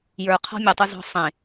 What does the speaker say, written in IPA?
j ə˞ qʰ ɔ̤ mʲ ɵ tˤ ɵ z ɔ̤ sˤ ẽ

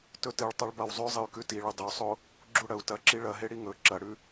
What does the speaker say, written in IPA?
t ɵ t ɨ ɭ tˤ a ɭ b a w zˤ ʉ zˤ ɨ y̯ k ʉ t i ɭ ɵ dˤ ɵ sˤ o | ɡ͡ǁ u ɽ ɐ u̯ t ɐ ǁ i ɭ ɐ ɦ e ɽ i ŋ ɵ ǁ ɐ ɽ ʉ

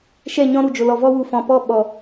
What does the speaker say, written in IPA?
ʃ ɛ˦˨ ɲ ɔ̃˦ ɾ u˨ d͡ʒ o˨ l ɔ˨ v ɔ˧ w u˨ f ɔ̃˨ p ɔ˦˨ ɓ ɔ˨

